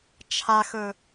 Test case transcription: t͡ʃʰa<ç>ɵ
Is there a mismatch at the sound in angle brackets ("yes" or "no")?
yes